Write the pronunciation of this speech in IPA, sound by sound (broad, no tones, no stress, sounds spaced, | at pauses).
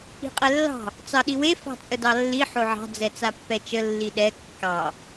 i̤ qʼ ɛ lː ɑ̤ | t͡s ɑ ɗ i w e f ɑ̤ t͡sʼ ə d ɑ lː i ħ o ʕ ɑ̤ d͡z ɛ t͡s a pː ɛ t͡ʃ ə lː i ɗ ɛ kː ɑ